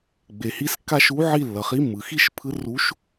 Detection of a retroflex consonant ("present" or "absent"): absent